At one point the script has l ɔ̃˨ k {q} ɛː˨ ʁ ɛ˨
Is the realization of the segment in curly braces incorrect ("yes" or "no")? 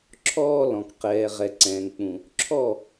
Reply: no